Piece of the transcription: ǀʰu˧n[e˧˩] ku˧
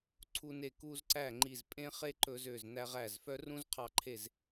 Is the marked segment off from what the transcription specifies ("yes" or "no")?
no